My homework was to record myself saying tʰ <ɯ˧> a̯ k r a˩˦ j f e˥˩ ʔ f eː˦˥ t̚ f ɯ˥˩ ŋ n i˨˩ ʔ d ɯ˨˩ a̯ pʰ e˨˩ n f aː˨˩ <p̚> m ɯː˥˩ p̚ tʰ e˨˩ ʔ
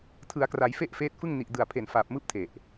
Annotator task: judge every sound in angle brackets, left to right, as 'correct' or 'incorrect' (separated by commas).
incorrect, correct